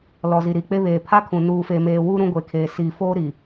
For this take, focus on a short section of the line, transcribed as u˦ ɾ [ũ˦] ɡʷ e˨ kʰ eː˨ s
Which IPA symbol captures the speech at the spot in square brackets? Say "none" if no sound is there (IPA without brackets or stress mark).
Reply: ũ˦